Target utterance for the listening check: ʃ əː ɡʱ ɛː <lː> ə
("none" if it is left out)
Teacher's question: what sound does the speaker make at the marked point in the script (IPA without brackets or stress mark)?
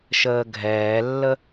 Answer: lː